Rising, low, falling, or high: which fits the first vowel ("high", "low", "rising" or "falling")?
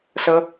high